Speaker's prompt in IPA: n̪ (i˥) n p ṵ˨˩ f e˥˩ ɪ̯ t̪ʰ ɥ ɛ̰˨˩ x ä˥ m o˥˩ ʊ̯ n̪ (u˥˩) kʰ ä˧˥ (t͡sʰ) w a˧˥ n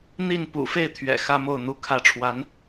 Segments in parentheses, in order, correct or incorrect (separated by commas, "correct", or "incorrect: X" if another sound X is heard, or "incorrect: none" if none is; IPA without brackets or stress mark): incorrect: i˥˩, incorrect: u˧˥, incorrect: ʈ͡ʂʰ